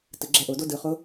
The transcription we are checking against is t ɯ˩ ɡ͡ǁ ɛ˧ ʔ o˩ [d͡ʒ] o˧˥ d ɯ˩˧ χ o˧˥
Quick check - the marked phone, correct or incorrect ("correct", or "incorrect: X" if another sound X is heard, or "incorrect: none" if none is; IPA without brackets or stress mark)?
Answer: incorrect: d